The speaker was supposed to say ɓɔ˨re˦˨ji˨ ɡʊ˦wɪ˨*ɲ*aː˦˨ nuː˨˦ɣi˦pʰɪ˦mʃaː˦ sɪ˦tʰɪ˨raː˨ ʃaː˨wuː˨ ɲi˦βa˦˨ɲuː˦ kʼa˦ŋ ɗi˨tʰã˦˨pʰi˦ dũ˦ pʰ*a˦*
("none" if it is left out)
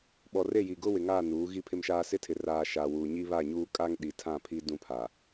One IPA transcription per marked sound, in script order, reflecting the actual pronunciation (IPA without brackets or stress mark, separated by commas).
ŋ, a˨